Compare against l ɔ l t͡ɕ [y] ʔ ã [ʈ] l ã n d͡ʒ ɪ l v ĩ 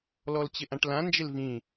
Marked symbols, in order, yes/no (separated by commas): no, yes